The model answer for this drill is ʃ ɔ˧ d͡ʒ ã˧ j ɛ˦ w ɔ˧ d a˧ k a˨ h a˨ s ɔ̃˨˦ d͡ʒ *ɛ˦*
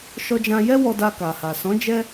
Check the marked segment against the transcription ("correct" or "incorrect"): correct